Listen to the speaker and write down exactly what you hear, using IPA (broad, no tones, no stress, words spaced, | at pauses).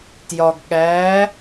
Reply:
tjɒɡ ɠæ